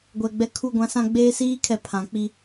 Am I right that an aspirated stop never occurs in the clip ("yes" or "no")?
no